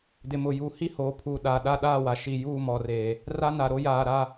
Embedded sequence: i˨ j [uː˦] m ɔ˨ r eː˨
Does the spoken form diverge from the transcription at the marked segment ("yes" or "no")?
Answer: yes